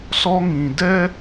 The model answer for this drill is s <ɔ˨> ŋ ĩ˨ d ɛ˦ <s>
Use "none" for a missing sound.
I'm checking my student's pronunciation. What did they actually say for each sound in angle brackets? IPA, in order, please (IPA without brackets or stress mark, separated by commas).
ɔ˦, none